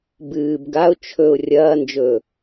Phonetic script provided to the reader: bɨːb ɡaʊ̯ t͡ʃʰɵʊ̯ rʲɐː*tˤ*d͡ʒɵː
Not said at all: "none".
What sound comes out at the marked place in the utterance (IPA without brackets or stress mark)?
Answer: n